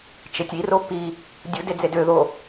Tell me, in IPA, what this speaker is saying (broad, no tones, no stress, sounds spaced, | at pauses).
t͡ʃ e tʲ i r o p i | dʲ ɯ d e d͡z e d ø ð o